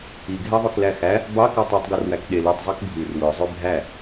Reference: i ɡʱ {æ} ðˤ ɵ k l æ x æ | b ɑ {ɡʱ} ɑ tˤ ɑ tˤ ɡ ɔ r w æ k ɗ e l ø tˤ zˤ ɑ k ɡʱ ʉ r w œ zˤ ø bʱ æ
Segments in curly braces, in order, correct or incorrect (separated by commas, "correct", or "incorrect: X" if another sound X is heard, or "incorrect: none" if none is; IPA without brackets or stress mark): correct, incorrect: k